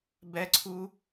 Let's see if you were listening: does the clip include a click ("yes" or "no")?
yes